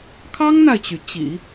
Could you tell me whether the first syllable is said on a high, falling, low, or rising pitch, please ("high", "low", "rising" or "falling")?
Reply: high